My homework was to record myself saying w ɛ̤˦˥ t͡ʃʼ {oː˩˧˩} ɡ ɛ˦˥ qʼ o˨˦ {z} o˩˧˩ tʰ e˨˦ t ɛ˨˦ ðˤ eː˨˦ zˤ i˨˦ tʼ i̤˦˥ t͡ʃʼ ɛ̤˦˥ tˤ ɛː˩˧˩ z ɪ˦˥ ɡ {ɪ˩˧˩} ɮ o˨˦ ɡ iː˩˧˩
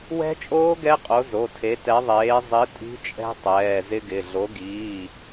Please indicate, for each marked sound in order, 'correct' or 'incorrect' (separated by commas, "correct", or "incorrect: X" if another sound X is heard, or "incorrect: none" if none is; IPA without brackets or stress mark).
incorrect: oː˦˥, correct, correct